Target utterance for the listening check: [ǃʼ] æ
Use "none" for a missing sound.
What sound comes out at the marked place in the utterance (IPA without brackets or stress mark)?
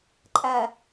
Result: ǃʼ